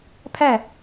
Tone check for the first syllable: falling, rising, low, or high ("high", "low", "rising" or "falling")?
falling